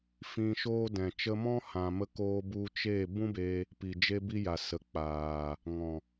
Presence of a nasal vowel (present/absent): present